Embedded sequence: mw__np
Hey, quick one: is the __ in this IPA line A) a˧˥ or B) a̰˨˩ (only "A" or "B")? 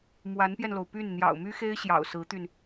A